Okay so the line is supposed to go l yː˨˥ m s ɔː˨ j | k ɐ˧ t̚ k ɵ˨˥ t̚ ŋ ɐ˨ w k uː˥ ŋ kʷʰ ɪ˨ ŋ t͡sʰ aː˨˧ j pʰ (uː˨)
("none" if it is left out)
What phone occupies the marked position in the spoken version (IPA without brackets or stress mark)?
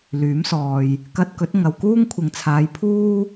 uː˥